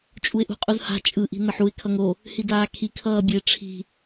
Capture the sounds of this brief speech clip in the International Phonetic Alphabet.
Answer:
t͡ʃʼuɪ̯ʔṳqʼuzha̤ t͡ʃʼɯ ʔi̤nʌħuɪ̯ kʰʌŋo | hidaːkʰi kʰʌːbʲe ʈ͡ʂʰi̤

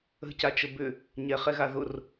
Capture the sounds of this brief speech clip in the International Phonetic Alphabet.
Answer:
ə̤cat͡ʃə bʏ | ɲɛχɛɣa ðʊr

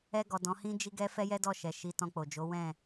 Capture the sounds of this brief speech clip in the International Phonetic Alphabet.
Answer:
ɛ˧ɡɔ˨ dɔ̃˨˦hĩ˦d͡ʒi˦ɡɛ˦ fɛ˦jɛ˦dɔ˦˨ ʃɛ˨ʃi˨˦tɔ̃˧k͡po˨ d͡ʒo˨˦wɛ̃˦˨

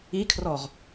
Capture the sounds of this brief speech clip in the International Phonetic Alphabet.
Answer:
ikʰrɔʁ

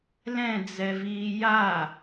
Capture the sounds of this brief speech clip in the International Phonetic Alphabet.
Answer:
lɛ̃d͡zɛviː ja

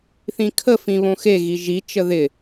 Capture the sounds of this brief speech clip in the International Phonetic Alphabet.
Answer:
θĩkʰə fĩβõxe ɣiʒi t͡ʃəðɪ

